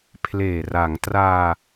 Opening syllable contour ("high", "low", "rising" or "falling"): low